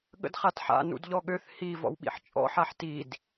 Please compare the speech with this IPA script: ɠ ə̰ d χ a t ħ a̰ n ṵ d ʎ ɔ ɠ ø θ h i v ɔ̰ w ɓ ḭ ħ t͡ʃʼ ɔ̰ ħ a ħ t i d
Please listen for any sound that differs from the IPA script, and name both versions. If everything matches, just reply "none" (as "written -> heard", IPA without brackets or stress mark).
none